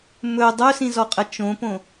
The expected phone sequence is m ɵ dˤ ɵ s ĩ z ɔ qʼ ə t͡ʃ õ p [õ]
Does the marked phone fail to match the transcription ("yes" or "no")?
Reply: no